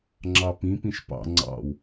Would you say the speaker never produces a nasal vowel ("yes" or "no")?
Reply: no